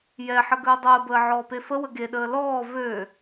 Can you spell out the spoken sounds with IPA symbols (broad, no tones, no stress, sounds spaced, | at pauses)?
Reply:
j ɛ ħ ə ɡ əː dˤ əː b əː ʕ ɔː p e f ə w ə ɡ e ɗ əː l ɔː v ø